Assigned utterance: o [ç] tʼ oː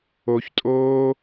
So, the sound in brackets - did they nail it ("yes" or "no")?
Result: yes